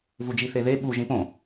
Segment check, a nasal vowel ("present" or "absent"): present